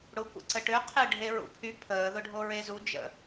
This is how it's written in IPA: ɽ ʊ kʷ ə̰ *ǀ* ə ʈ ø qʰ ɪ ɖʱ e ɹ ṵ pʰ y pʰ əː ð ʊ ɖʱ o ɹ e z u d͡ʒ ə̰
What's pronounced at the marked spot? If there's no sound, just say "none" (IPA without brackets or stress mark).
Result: ǀ